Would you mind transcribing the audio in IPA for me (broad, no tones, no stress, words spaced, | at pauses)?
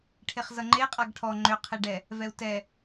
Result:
ʈʰeχzʌŋ͡ǃeqʼaɡ ʈʰɔ ŋ͡ǃʏqʰeɖɛ | vɛu̯tɛ